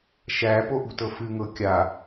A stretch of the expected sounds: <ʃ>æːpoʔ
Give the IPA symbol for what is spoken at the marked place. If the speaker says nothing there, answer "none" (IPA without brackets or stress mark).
ʃ